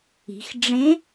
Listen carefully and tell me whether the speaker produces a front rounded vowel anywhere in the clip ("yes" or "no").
no